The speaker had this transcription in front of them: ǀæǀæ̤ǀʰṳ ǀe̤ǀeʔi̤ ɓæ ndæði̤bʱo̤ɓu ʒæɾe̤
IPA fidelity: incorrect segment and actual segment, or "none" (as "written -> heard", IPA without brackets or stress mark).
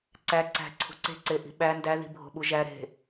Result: none